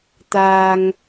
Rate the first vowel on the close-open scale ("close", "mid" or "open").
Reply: open